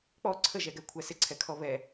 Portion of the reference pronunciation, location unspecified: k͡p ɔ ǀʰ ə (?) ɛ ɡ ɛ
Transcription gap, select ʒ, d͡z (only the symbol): ʒ